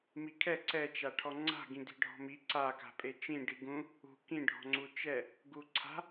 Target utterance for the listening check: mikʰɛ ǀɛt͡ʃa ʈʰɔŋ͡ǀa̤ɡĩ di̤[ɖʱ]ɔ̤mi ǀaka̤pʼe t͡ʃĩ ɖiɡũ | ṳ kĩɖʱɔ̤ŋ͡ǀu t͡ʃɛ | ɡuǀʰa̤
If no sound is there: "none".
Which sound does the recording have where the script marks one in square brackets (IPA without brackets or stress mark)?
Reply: ɖʱ